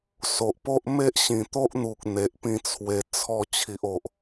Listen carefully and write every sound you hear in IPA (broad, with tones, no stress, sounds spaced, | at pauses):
s o˨ ʔ p o˦ ʔ m e˦ ʔ ɕ ĩ˨˩ t̪ o˦ ʔ n̪ u˨ k̚ n̪ e˨ ʔ p ĩ˥˧ t͡sʰ w e˧ t͡sʰ ɔ˧ t͡ɕʰ i˨ ʔ o˨ ʔ